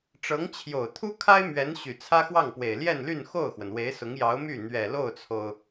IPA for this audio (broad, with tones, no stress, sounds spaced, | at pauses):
ʈ͡ʂ ɤ˧˥ ŋ t͡ɕʰ j o˨˩ ʊ̯ t̪ʰ u˥ kʰ a˥ ɪ̯ m ɥ ɛ˧˥ n ɕ y˨˩ t͡sʰ ä˥ x w ɑ˥˩ ŋ p w e˨˩ ɪ̯ l j ɛ˥˧ n l y˥˧ n x o˥˩ ʊ̯ x w ə˩ n w e˧˥ ɪ̯ s ʊ˧˥ ŋ j ɑ˧˥ ʊ̯ m y˥˩ n̪ ɥ ɛ˨˩ l o˥˩ ʊ̯ t͡sʰ o˩ ʊ̯